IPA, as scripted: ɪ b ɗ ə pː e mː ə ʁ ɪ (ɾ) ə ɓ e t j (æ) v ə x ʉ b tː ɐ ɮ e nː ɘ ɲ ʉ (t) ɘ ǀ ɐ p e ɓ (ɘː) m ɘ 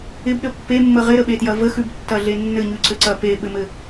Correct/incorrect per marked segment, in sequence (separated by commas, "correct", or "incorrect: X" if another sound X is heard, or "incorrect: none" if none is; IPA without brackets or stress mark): correct, incorrect: ɐ, incorrect: ǀ, incorrect: ɘ